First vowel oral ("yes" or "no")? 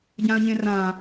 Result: no